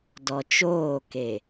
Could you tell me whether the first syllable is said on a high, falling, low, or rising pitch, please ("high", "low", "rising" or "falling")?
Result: low